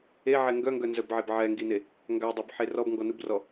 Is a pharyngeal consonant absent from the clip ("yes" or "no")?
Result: no